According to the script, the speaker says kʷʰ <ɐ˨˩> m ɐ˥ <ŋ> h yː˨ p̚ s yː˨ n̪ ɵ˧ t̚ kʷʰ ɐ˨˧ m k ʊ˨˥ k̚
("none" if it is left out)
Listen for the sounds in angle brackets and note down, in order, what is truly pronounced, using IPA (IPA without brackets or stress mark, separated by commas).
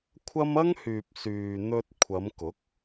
ɐ˥, ŋ